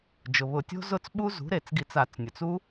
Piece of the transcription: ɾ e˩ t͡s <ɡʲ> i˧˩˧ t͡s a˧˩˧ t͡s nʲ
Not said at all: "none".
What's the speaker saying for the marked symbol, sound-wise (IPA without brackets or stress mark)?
ɡ